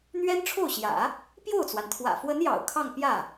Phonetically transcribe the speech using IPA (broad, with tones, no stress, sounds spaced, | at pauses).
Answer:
n̪ ɥ ɛ˥ n ʈ͡ʂʰ o˥˩ ʊ̯ ɕ j ä̰˨˩˦ | p j o˥˩ ʊ̯ t͡s w a˩ n t̪ʰ w ä̰˨˩ f w ə˧˥ n j ɑ̰˨˩ ʊ̯ kʰ ɑ˥˧ ŋ p j ä˥˩